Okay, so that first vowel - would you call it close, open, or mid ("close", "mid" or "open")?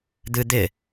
close